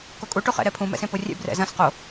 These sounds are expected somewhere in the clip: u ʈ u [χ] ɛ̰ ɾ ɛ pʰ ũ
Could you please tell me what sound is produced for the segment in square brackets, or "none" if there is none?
χ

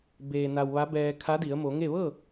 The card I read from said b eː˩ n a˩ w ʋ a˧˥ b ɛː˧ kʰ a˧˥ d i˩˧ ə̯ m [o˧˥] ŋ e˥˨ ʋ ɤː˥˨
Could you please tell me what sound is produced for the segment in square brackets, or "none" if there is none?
o˩˧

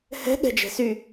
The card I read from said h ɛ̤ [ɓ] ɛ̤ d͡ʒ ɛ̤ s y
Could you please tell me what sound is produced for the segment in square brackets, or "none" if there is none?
ɠ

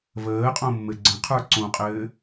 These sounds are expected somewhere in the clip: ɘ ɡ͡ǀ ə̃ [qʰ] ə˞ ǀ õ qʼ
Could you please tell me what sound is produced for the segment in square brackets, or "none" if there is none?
qʰ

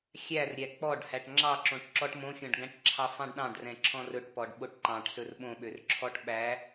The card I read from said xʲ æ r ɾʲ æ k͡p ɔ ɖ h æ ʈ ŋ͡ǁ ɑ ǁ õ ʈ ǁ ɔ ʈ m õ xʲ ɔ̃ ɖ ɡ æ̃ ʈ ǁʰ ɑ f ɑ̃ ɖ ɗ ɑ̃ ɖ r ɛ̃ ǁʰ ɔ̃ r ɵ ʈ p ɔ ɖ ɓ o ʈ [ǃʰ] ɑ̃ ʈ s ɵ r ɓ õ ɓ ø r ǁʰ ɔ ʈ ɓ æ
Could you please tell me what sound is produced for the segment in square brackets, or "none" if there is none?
ǃ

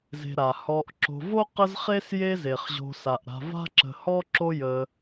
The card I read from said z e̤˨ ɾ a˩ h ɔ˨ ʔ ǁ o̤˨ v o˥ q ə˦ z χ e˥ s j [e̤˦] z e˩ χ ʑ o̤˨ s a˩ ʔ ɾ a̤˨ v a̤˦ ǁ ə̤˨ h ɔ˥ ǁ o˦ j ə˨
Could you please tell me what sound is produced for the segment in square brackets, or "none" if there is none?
e˦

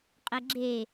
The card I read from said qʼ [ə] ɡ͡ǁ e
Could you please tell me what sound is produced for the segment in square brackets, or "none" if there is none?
ə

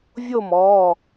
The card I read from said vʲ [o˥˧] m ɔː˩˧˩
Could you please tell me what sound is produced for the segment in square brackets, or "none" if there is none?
o˥˧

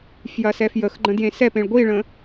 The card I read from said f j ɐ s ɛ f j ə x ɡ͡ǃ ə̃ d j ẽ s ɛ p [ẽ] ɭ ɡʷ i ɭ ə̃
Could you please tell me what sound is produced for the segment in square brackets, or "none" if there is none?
ẽ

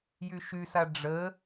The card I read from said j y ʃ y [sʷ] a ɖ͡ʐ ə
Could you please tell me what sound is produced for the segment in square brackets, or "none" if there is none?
s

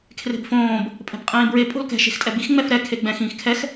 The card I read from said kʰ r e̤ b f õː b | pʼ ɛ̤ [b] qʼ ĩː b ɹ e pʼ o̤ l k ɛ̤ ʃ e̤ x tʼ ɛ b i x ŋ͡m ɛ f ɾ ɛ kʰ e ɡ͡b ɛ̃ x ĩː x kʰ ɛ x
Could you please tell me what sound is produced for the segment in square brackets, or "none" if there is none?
b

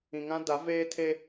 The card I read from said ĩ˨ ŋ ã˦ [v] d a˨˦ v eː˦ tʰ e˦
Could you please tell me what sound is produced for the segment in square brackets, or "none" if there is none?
none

